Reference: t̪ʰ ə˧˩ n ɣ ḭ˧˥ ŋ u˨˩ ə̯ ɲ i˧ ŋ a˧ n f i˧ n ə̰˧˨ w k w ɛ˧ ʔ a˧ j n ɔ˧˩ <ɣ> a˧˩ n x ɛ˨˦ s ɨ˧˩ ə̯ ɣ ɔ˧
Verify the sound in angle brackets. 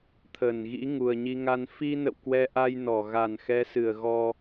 correct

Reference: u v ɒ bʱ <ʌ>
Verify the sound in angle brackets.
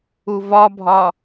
incorrect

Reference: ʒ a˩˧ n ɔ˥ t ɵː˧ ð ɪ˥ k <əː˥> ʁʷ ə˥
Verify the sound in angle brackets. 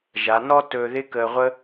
incorrect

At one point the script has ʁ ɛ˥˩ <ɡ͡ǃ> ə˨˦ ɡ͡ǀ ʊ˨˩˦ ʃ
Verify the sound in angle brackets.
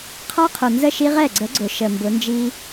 incorrect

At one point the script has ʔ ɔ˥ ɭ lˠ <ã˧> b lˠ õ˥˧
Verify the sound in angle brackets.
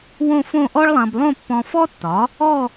correct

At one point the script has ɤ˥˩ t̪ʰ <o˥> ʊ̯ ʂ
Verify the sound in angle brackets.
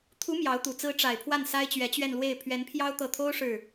correct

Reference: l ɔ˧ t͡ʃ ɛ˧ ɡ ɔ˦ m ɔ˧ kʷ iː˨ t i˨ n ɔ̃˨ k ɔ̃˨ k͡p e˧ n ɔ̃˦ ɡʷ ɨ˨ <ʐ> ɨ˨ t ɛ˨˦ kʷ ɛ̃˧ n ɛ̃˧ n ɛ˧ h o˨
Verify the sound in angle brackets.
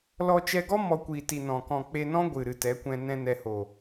incorrect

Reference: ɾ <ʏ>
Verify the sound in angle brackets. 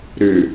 correct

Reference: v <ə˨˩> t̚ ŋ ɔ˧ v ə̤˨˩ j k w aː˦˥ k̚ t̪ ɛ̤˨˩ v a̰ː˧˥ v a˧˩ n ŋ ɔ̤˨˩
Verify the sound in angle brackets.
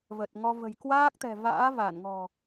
correct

